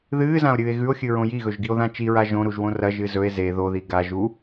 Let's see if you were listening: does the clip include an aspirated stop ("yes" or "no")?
no